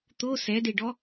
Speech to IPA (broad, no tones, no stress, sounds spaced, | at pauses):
t̪ o s ɛ d e ɖ ɔ